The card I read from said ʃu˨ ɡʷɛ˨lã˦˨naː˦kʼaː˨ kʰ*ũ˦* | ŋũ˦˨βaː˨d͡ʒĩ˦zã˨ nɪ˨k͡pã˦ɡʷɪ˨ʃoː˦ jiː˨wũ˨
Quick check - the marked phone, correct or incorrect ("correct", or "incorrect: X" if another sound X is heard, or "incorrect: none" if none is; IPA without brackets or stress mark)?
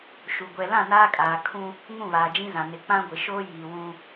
correct